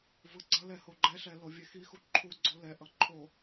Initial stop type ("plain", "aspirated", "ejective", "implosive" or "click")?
click